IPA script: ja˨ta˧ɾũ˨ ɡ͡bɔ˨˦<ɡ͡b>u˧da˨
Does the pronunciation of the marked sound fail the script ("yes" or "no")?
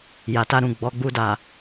no